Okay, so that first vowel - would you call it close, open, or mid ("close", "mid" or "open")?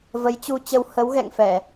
mid